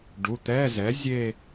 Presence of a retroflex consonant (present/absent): present